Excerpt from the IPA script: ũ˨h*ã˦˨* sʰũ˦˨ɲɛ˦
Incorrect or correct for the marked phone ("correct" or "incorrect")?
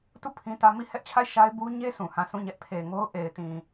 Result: correct